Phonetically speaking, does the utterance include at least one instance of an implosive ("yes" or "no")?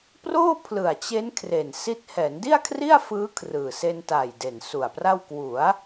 no